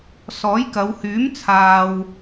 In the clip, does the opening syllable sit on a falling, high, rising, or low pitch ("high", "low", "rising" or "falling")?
rising